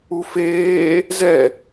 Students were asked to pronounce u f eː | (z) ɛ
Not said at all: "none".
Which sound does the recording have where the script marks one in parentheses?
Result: z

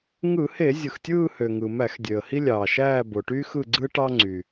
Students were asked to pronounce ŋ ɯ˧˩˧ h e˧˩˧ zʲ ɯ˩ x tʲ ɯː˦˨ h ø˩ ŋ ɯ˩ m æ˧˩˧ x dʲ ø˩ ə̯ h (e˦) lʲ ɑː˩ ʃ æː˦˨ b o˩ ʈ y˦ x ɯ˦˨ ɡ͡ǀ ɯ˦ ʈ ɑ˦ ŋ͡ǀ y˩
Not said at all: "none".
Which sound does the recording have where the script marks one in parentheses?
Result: i˦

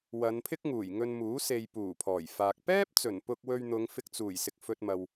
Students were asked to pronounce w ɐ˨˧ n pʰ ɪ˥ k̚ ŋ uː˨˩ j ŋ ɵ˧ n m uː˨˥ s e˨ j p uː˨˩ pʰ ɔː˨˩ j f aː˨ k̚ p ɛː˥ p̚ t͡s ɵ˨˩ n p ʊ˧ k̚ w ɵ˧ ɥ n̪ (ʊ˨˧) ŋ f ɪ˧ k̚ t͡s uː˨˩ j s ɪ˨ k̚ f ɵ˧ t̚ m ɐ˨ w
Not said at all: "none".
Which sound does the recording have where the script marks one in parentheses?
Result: ʊ˨˧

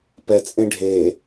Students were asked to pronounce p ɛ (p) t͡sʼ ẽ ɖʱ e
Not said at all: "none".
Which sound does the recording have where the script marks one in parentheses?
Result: none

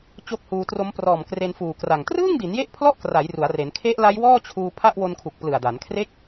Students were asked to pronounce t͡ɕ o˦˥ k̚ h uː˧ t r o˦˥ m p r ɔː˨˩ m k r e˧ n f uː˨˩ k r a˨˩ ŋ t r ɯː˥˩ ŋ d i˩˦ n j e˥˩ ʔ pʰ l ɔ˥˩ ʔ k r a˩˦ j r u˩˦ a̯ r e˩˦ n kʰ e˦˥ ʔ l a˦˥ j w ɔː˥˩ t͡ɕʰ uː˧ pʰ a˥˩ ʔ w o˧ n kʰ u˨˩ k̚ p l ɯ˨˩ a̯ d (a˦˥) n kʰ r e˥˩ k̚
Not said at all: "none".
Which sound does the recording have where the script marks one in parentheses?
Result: a˩˦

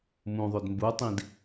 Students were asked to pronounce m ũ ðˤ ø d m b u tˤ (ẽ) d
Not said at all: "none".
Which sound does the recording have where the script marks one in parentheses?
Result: ĩ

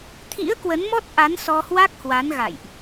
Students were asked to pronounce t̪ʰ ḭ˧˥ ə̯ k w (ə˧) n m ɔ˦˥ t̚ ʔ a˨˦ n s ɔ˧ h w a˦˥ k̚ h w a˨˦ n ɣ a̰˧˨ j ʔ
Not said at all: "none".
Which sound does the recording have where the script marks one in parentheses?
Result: ə˨˦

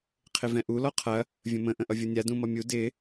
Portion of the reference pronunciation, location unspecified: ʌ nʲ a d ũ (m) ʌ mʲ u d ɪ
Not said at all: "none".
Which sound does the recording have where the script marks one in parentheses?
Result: m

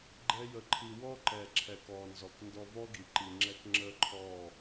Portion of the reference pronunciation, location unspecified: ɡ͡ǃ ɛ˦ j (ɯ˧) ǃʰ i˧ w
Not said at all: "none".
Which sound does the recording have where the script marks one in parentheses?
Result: ə˧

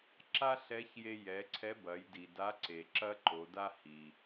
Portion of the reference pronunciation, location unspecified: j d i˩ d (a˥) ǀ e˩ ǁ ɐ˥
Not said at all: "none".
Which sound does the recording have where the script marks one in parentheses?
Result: a˧˥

